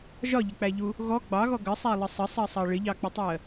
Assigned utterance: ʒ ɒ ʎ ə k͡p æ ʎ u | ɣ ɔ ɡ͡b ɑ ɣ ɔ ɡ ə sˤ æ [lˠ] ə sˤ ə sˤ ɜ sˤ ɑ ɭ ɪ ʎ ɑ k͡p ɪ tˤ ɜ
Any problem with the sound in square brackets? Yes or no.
no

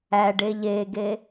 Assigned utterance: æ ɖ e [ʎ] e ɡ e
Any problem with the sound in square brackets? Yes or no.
no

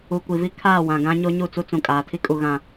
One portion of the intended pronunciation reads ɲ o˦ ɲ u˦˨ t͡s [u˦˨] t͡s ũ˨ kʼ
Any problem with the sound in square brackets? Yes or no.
yes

